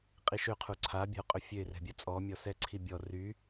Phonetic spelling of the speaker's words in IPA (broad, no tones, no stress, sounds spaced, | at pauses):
qʼ i ʃ ø qʰ u ǀʰ a bʲ a̤ ʊ̯ qʼ ø fʲ ø ɪ̯ r ɛ̤ bʲ a t͡sʼ ɔ mʲ ɔ s ɛ ǀʰ i bʲ ɔ r y